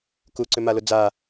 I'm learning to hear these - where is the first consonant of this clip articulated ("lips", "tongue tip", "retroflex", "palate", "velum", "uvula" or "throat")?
velum